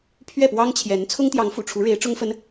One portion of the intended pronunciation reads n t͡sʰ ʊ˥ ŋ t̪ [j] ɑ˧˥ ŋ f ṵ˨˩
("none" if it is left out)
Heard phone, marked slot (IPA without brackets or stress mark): j